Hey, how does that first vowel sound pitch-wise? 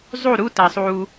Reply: falling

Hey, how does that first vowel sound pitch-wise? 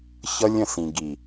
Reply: high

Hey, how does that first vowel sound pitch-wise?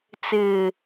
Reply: low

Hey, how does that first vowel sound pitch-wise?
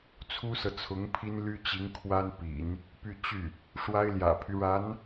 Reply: high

